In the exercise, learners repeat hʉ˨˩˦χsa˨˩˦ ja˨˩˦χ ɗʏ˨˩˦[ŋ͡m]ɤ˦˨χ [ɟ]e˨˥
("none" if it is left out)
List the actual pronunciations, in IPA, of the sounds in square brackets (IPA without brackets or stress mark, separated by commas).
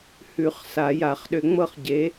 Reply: ŋ͡m, ɟ